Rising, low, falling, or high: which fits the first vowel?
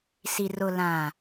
low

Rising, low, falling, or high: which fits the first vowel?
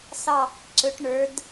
falling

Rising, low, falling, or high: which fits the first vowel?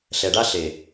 low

